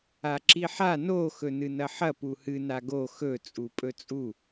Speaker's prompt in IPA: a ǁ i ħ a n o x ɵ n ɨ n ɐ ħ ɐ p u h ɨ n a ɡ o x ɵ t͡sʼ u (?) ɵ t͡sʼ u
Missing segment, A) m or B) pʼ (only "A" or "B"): B